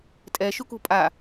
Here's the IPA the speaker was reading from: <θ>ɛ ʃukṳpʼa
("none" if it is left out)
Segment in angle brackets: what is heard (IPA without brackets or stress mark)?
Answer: tʼ